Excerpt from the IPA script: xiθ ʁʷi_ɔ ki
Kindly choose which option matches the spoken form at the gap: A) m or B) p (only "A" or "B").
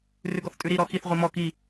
A